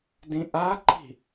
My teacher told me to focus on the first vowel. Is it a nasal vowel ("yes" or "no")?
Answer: yes